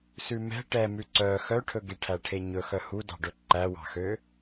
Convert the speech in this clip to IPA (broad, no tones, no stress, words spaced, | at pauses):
sʉmɛ̤ ʈɛ mʉǀœ xœʈʰɵɡe ʈʰæʈʰeɲɵ xœhudɑ̤ɖɵ ǃæwɑ̤xø